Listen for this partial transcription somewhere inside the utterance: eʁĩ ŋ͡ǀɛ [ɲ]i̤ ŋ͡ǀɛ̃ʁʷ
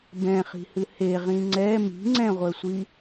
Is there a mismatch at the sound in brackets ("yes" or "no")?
yes